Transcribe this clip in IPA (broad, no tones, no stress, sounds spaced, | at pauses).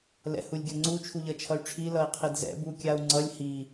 l ɛ̰ h u lʲ ɡʲ ʌ ŋ͡ǀ u t͡ʃʰ u ʎ ʌ t͡ʃʰ ʌ y̯ ʈ͡ʂʰ i l ʌ i̯ qʰ i d z ɛ̰ b u kʲ a u̯ ŋ͡ǀ ʌ lʲ h i